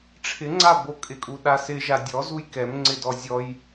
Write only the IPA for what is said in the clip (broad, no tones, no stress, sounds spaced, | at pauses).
ʈ͡ʂʰ ɪ ŋ͡ǀ a b o kʼ ɪ kʼ u ɗ a s ɪ ʒ a dʲ ɔ z u j k ɛ m ŋ͡ǀ ɪ d ɔ zʲ ɔ j